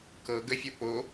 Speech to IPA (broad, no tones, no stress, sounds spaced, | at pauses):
k ɤ ɡ ə fʲ ɤ p o